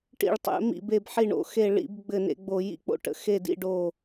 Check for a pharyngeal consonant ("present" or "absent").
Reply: present